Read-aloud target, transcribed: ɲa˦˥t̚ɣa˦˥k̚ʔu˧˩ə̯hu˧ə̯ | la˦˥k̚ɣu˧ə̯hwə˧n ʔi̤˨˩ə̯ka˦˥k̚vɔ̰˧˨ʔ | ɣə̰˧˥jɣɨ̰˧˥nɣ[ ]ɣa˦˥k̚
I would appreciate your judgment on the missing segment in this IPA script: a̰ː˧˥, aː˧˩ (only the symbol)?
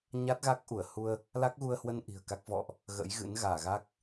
aː˧˩